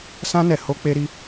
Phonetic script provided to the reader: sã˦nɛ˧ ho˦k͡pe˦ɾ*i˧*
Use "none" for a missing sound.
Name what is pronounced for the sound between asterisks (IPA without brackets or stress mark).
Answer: i˦